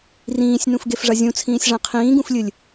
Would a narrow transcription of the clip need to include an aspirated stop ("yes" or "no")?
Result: yes